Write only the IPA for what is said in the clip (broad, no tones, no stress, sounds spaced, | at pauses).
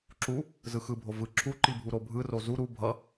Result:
ǁ u | z ɯ x ɯ bʱ o v ɯ ǁʰ u ǃ i bʱ u ɾ o bʱ ɯ r o z u ɾ u bʱ ʌ